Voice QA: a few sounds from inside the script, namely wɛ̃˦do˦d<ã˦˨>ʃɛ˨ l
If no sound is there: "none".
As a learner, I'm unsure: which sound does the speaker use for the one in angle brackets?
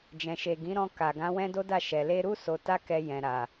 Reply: a˦˨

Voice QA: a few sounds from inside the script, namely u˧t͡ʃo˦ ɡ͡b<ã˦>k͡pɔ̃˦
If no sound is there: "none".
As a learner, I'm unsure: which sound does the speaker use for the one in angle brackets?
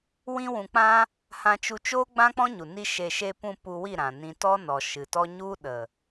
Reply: ã˦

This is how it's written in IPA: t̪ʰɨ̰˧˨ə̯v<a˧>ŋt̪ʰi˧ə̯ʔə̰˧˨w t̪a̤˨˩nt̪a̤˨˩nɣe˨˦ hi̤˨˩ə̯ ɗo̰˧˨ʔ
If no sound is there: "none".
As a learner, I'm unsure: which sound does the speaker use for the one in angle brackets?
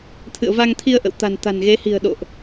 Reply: a˧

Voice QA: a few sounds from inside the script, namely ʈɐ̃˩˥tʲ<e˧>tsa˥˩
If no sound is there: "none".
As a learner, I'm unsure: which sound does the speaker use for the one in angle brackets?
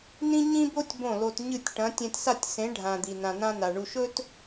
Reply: ẽ˧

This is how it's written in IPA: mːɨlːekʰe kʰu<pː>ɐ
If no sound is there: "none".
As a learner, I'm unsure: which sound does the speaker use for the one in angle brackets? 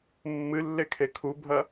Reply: bʱ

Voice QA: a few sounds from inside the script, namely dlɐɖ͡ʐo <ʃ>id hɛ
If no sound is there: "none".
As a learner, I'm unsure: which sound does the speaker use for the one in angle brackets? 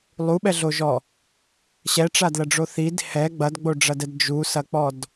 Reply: θ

